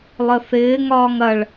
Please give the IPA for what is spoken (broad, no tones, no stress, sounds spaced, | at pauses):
lˠ ə θ ɪː ŋ ɒː ŋ ɐ ɭ